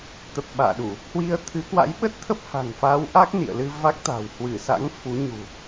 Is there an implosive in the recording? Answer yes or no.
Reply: yes